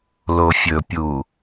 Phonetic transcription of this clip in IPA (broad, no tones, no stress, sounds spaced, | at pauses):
l o fʲ ɵ pʲ u